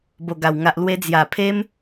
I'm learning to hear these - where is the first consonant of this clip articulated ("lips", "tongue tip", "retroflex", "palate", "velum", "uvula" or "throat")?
lips